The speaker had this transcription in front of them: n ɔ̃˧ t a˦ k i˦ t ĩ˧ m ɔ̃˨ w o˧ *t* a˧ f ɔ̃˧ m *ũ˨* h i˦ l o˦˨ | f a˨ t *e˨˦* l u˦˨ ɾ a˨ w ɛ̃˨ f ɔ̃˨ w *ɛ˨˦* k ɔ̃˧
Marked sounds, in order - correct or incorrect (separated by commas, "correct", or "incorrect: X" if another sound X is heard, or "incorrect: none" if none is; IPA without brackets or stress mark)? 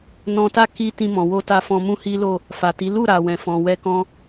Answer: correct, incorrect: ũ˦, incorrect: i˨˦, incorrect: ɛ˧